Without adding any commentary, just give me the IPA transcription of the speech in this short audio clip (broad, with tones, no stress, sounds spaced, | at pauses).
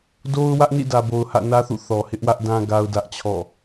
d o˦ ʊ̯ w ä˦ ʔ n ḭ˦˨ d ä˨ b o˨ ʊ̯ h ä̰˦˨ n ä˦ θ ṵ˦˨ θ ɔ˨ h ɪ˦ ʔ w ä˦ ʔ d ã˦ ɡ a˦ ʊ̯ d ä˦ ʔ t͡ɕʰ ɔ̰˦˨